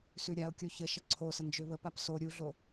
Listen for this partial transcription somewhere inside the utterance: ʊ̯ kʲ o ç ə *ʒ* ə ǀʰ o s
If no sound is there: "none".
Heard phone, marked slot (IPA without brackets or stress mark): ʃ